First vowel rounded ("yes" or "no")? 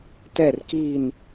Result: no